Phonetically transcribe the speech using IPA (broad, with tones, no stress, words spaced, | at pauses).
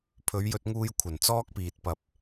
pʰɵ˨˧ɥjɵ˧t̚ŋuː˧j kʷʰɐ˨˩nt͡sɔː˥k̚piː˨t̚pɐ˧p̚